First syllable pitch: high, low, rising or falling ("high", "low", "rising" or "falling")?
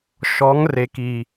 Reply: rising